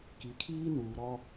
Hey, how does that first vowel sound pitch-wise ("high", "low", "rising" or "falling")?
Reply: low